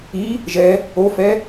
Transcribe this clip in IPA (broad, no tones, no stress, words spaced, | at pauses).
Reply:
i | ʒɛ | ofɛ